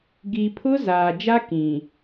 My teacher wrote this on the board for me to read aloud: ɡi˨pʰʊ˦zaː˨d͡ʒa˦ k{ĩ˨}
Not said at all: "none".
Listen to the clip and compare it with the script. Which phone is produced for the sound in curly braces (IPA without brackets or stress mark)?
ĩ˨